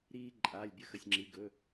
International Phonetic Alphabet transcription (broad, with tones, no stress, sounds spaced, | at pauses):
ɾ iː˧ ǃʼ aː˩˧˩ lʲ bʲ ə˧ x ə˩˧˩ sʲ ŋ͡ǁ i˩˧˩ ɡ ɵ˩˧˩